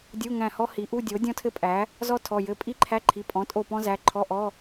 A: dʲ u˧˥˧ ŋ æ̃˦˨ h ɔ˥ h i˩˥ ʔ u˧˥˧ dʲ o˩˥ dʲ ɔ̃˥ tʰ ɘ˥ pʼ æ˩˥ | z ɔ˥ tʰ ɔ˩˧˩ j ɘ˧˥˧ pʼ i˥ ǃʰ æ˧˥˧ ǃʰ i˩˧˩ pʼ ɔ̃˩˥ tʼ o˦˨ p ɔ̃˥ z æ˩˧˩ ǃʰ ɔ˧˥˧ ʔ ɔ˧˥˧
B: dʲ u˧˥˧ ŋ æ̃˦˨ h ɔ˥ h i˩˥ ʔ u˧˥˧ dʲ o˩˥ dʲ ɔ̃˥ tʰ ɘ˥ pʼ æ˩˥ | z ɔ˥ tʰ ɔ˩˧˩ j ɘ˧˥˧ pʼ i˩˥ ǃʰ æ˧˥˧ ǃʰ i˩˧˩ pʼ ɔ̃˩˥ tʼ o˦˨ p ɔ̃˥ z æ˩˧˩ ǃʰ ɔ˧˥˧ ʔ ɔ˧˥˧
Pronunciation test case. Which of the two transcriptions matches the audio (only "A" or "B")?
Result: A